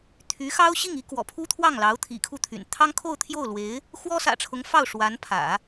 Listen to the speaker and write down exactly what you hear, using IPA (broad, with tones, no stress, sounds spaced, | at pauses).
t̪ʰ y˧˥ x ɑ˥ ʊ̯ ɕ i˥˩ ŋ i˥ k w ɔ̰˨˩ pʰ u˥ t̪ʰ w ɑ˥˩ ŋ l ɑ˧˥ ʊ̯ t̪ʰ ḭ˨˩ kʰ u˥˩ t̪ʰ y̰˨˩ n t̪ʰ ɑ˥ ŋ kʰ o˥˧ ʊ̯ t̪ʰ j o˥˩ ʊ̯ l w e˧˥ ɪ̯ | x w ɔ˥ s ä̰˨˩ ʈ͡ʂʰ ʊ˧˥ ŋ f ɑ˥˩ ʊ̯ ʂ w a˧˥ n pʰ ä̰˨˩˦